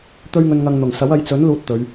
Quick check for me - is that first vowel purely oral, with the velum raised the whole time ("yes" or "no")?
yes